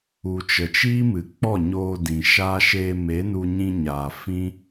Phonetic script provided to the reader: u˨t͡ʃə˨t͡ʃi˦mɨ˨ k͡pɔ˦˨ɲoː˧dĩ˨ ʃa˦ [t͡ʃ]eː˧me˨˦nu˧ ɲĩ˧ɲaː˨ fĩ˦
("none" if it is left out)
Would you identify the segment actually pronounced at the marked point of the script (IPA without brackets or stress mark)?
ʃ